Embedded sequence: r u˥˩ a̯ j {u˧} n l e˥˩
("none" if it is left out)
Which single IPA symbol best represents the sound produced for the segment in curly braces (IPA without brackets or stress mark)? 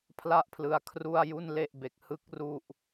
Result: u˥˩